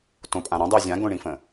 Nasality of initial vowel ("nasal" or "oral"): nasal